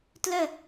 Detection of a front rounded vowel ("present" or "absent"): present